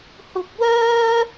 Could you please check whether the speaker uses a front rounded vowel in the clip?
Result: yes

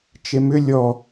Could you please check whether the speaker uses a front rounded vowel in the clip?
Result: yes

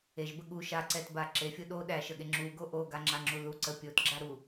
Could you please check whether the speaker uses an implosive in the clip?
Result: yes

